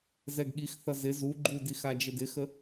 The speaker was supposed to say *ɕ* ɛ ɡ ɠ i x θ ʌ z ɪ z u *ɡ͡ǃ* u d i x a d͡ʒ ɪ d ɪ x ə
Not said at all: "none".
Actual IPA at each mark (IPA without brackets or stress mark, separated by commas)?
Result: z, ɡ͡ǃ